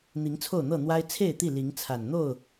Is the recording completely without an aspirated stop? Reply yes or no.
no